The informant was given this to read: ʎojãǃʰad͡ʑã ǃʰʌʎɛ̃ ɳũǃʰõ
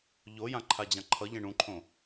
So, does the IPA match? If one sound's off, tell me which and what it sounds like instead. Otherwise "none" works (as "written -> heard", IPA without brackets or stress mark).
none